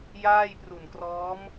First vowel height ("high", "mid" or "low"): low